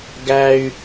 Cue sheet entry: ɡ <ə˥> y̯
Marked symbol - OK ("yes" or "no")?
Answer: no